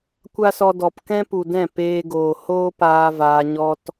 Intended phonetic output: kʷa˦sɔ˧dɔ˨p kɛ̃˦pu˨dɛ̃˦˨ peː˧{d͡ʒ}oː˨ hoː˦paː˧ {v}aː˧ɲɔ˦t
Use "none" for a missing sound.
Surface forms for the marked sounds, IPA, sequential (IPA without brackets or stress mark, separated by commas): ɡ, v